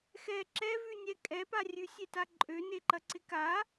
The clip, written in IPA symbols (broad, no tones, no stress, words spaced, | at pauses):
xɛ ǁɛvʉ nʲɛkʼɛpa rʲʉsʲeta ǃʼøne ǃɐǀɪka